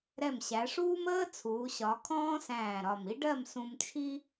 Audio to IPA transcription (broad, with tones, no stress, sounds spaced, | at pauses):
ɾ ɛ˧˩ m ɕ æ˩˧ ʂ uː˥ m əː˥ t͡sʰ uː˩˧ ɕ ɒ˩˧ kʰ ɔ̃ː˥ s æ̃ː˧˩ ɾ ɒ˧˩ m i˥ ɖ ɜ˥˧ m s ũ˧ m t͡ʃʰ i˥